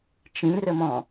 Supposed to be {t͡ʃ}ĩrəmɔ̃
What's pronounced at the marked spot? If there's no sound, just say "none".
t͡ʃ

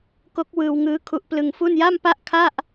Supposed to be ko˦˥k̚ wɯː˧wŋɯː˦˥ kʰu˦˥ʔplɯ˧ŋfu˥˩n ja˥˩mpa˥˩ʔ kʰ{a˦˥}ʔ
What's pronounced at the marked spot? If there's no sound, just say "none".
a˥˩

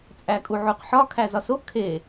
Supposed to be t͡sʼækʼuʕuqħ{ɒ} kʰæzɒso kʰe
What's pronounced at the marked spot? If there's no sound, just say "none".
ɒ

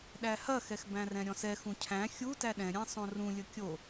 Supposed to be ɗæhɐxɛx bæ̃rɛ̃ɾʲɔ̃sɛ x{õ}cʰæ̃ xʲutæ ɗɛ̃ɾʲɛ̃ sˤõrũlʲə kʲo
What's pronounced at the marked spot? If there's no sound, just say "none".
ũ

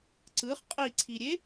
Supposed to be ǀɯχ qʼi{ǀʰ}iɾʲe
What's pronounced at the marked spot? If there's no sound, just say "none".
ǀʰ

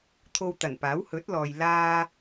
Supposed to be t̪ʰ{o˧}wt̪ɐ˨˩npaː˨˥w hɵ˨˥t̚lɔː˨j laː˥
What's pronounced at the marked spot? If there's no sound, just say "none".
o˧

